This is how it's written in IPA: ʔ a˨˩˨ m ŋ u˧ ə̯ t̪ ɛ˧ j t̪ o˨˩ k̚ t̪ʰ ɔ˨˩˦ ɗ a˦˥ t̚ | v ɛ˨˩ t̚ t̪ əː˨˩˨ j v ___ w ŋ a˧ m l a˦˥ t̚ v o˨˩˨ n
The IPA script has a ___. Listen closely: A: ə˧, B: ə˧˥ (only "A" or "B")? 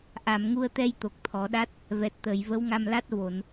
B